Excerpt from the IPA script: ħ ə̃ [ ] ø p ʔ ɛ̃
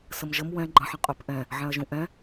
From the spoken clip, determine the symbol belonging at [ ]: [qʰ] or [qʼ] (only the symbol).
qʼ